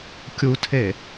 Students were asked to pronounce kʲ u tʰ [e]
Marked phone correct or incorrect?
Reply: correct